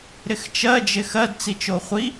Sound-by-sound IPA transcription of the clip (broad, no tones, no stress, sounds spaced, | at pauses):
ɾ ɪ x t͡ʃ ɜ d͡ʒ ɪ x ɜ d t͡s i t͡ʃ o χʷ i